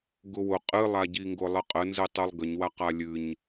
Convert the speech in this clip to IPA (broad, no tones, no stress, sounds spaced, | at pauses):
ɡ ʊ w ʊ qʼ ɨ lˠ a ɟ i ŋ ɡ ʊ lˠ ə qʼ ə n z ɨ tˤ ɨ lˠ ɡ ə ɲ w a q a lʲ ɨ ɲ